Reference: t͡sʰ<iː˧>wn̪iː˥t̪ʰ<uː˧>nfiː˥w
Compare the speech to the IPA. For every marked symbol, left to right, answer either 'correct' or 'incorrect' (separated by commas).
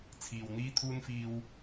correct, incorrect